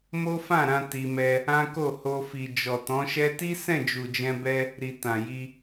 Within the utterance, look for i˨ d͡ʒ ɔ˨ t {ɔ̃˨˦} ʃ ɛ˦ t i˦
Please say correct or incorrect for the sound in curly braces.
correct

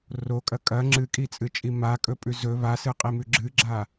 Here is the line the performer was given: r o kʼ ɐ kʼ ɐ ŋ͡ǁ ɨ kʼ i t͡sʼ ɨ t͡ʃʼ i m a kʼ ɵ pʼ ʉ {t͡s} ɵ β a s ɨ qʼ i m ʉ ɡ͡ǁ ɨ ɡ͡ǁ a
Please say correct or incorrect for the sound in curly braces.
incorrect: z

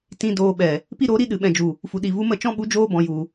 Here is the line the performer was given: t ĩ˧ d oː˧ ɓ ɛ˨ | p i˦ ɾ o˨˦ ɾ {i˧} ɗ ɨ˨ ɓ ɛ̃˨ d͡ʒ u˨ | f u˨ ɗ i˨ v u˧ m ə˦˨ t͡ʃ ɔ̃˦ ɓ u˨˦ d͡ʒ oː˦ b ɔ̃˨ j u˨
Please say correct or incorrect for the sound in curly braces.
correct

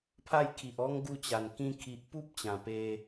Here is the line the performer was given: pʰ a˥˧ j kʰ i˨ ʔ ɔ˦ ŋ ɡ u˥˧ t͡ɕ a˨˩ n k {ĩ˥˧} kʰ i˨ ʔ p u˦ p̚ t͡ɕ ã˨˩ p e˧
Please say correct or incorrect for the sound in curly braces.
incorrect: ĩ˧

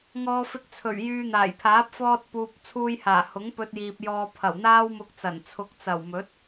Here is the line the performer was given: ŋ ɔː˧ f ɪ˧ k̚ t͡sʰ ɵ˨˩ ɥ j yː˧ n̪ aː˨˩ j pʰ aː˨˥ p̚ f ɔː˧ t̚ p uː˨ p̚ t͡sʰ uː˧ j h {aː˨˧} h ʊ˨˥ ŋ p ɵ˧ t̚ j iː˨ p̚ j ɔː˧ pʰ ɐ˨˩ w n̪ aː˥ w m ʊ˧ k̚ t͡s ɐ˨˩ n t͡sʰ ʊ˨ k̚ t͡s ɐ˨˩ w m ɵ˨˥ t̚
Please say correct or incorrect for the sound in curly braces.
incorrect: aː˨˩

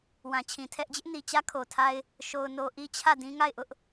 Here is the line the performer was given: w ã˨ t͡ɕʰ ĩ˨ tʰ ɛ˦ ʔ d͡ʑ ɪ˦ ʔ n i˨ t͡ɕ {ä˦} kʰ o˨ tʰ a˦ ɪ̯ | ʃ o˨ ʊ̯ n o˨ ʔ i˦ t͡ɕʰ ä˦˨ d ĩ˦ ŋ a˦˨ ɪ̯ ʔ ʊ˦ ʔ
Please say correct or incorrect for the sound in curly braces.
correct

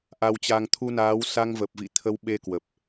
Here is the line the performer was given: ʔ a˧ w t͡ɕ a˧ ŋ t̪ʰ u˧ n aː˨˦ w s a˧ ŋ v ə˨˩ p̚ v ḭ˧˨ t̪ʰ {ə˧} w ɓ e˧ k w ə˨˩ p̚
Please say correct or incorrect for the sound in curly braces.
correct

